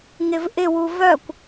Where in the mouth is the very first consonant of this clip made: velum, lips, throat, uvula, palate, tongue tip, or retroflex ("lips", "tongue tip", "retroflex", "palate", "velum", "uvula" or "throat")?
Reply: velum